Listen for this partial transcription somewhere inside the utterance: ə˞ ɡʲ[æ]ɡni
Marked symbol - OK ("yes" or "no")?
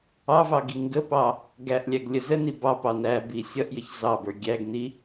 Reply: yes